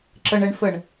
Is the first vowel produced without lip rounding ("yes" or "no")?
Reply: yes